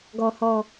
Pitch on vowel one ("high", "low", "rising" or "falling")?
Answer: high